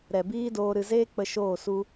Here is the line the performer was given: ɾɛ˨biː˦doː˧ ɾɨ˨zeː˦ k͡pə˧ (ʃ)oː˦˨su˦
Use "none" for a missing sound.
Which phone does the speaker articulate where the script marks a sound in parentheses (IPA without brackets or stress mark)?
ʃ